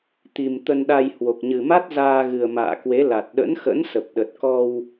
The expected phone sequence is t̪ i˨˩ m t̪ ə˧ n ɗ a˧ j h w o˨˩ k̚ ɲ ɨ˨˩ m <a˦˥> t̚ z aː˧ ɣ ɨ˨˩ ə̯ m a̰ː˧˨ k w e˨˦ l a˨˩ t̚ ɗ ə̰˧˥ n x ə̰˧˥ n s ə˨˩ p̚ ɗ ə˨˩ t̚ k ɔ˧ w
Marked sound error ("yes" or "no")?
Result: no